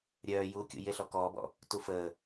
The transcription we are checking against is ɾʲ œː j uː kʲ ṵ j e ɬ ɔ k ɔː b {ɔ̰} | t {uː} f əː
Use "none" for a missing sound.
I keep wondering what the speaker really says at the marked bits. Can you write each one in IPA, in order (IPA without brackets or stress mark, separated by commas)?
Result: ɔ̰, u